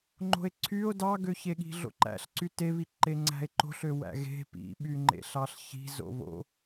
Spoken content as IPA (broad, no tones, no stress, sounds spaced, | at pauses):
ŋ͡ǃ o̤ e̯ ǀʰ y o̯ d ɑ ɡ ø ç e ɠ i̤ ɮ o̰ ǃ æ̰ ɬ ǀ y t e β i ǃ e ŋ͡ǀ æ̤ e̯ ǃ o̤ ɬ ø w æ̰ ɣ e̤ p ḭ ɓ y ŋ͡ǃ ḛ ɬ ɑ ɬ ç i̤ z o̰ β o̰